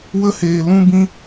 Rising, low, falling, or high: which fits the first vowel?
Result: high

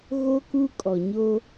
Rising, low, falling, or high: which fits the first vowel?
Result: high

